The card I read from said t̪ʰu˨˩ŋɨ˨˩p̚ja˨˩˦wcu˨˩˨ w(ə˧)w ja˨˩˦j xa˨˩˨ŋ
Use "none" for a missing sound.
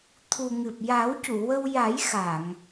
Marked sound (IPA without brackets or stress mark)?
ə˧